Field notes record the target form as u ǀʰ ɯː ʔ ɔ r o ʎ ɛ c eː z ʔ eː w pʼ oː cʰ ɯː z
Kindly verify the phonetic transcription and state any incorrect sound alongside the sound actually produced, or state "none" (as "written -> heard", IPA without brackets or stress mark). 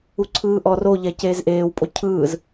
oː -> o